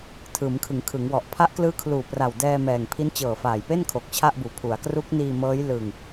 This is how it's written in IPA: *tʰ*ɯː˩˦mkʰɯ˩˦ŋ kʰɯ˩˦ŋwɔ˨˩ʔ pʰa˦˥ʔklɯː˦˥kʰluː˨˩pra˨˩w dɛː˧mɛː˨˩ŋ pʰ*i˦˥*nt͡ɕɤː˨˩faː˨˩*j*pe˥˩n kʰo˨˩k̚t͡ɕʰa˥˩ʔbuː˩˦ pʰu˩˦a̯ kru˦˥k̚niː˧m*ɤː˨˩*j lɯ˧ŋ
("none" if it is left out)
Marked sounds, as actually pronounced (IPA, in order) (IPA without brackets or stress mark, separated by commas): tʰ, i˦˥, j, ɤː˦˥